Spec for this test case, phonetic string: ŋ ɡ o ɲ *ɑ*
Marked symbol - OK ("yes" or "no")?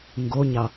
yes